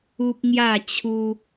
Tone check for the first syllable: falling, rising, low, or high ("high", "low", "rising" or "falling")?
high